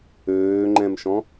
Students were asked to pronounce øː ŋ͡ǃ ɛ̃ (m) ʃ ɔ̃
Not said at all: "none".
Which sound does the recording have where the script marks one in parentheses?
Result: m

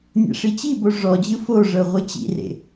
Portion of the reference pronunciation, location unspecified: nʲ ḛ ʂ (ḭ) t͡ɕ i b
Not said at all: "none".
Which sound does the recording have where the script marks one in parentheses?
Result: i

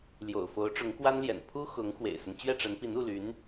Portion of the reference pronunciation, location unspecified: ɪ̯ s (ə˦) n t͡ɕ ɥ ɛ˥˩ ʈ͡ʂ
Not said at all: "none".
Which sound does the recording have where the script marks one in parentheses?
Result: ə˦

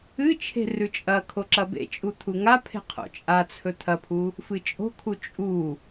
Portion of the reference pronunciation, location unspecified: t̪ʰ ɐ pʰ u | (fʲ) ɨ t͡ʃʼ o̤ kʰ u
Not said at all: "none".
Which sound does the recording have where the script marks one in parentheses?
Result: f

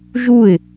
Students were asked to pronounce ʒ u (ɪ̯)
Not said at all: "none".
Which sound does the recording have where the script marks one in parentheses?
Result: ɪ̯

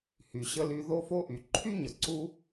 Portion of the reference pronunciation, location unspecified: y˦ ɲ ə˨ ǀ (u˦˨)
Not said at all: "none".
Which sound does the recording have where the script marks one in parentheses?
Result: u˦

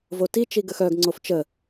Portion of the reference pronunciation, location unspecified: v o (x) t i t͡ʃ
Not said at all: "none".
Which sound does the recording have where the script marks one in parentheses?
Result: none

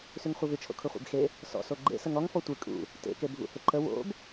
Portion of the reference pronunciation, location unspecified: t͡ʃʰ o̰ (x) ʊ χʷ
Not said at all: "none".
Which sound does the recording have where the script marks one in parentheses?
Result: kʰ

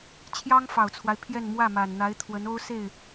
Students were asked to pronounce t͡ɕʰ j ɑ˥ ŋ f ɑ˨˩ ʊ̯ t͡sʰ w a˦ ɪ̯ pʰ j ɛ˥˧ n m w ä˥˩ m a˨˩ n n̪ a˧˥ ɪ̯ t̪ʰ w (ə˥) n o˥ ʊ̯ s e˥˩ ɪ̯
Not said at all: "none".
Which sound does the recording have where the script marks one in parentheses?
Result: ə˧˥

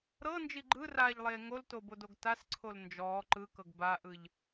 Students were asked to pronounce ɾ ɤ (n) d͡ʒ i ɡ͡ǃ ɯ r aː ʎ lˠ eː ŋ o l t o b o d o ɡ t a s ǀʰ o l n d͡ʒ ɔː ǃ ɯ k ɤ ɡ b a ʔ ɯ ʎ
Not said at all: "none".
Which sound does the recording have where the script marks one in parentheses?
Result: n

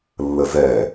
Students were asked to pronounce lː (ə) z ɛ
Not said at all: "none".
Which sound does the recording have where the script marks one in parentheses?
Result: ə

